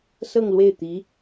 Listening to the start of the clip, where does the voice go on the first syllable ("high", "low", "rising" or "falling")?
falling